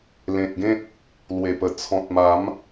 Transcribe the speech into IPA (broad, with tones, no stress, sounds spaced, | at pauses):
l ẽ˨ t̚ ɡ ẽ˦ t̚ | l w e˨˩ p ə˨˩ t͡sʰ ɔ̃˨ t̚ m a˨˦ m